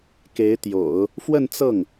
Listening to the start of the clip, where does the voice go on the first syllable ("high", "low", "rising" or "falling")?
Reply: rising